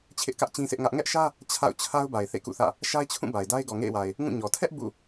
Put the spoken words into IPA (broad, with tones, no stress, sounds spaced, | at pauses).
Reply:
t͡ɕʰ ɪ˦ ʔ k ä˦ ʔ t͡ɕ ĩ˦ sʰ ɪ˦ ʔ ŋ ä˦ ʔ ŋ ɛ˦ ʔ ʃ ä˦ | t͡ɕʰ a̰˦˨ ʊ̯ t͡ɕʰ a˦ ʊ̯ b a˨ ɪ̯ θ ḛ˦˨ k ṵ˦˨ θ ä̰˦˨ | ʃ a˦ ɪ̯ t͡ɕʰ ũ˦˨ b a˨ ɪ̯ d a˦ ɪ̯ ɡ ɔ˨ ŋ ḛ˦˨ ɪ̯ w a˨ ɪ̯ | ŋ ũ˦˨ ɲ ɔ˨ tʰ ɛ˦ ʔ b ṵ˦˨